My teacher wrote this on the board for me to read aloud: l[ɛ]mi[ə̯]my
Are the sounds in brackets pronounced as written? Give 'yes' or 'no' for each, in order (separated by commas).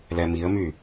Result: yes, yes